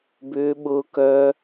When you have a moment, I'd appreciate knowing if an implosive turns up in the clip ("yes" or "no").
yes